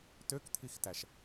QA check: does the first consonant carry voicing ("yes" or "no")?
no